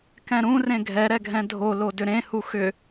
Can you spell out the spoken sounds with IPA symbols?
k ɛ̃ ɾ ũ r ẽ ɡʱ ɛ ɾ ɛ ɡʱ ɛ̃ dʱ o l o d ʏ ɾ ẽ h u x ʏ

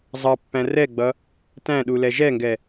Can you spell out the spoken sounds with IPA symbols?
zˤ ɑ pː æ̃ r ɛ ɡ͡b ʌ | t æ̃ ɗ u l ɛ ʒ ɛ ŋ ɡ ɛ

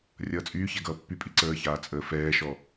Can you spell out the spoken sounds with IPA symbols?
rʲ ʌː t͡sʼ yː ç ɛ ɡ ʌː pː y pʼ i ǀ əː ç aː t͡sʼ əː f ɛː ʃ ɔ

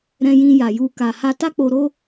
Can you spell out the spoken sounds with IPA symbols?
ɾ ɛ̃˧ j ĩ˧ j a˨ j u˧ k a˨ h a˧ t a˦ k͡p o˧ ɾ o˦

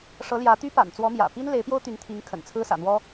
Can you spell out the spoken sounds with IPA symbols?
ʂ ɤ˧˥ l j ä˧˥ t̪ y˥ p a̰˨˩ n t͡s w ɔ˧˥ m j ä̰˨˩ p i˥ n l e˧˥ ɪ̯ p j o˥ ʊ̯ t̪ y˧˥ n t̪ʰ i˧˥ ŋ kʰ ə̰˨˩ n t͡sʰ ɹ̩˥ s ä̰˨˩ n̪ w ɔ˥

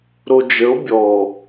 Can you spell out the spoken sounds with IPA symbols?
ɾ o d͡ʒ ə o̯ bʲ ɔ

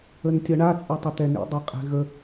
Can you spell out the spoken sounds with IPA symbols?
ə n tʲ ʌ ɳ a t͡sʼ ʌ tˤ ə t̪ ɛ n ḭ dˤ ɛ qʼ ɛ̤ ɣ ə

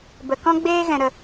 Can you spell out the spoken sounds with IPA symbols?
b ə˨ k ɔ̃˦ ɡ͡b eː˦ ɣ ɛ̃˨ ɾ ə˨

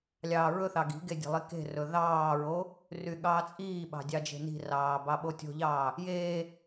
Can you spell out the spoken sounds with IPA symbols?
lʲ ɑː ɹ ɵ θ ɑ ɡ i̤ ɡ e dʲ e̤ lˠ i k e̤ r ɵ ð ɑː ɹ o | r y ɠ ɑː t͡sʼ iː ɓ ɑ̤ dʲ ɑ d͡ʒ e̤ n i̤ r ɑː b ɑ ɓ o tʲ o̤ ʎ ɑː | j eː

